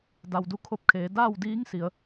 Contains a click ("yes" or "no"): no